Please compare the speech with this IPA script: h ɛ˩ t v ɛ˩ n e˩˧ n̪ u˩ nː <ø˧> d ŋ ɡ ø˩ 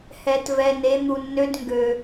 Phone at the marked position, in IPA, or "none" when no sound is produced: ø˧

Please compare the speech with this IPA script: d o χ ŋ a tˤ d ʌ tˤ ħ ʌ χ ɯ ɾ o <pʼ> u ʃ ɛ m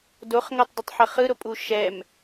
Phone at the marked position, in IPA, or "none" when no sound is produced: pʼ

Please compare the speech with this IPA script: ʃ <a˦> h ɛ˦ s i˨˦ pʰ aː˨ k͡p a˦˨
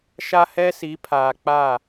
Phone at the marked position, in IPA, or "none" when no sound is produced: a˦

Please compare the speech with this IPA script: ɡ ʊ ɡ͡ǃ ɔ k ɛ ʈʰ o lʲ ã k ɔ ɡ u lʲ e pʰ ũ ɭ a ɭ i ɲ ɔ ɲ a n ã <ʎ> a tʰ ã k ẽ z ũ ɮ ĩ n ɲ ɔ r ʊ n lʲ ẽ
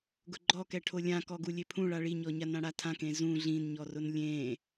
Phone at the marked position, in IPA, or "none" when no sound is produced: ɽ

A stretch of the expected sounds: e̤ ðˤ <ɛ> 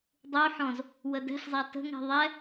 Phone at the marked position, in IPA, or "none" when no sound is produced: ɛ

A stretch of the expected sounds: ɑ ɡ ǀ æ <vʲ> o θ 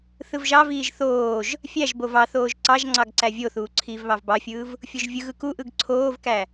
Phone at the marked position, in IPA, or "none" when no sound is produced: vʲ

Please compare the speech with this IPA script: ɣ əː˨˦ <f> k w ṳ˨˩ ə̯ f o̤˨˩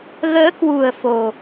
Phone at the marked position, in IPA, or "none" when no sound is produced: none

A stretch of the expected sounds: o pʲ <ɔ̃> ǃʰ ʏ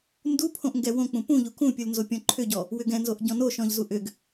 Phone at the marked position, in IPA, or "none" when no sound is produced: ɔ̃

